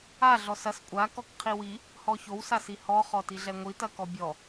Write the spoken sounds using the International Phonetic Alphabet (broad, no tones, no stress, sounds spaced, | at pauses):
a ɮ ɔ s ɐ s kʷʼ a k ɔ k qʰ i w i | h ɔ ç o w s a s i h ɔ χ ɔ t i ɮ ɛ ŋʷ i t ɐ k ɔ bʲ ɔ